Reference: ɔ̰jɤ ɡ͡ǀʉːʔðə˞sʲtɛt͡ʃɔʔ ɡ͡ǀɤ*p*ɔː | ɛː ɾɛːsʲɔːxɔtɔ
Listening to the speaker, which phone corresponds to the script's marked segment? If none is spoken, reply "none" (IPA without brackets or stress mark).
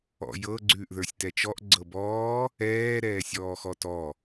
b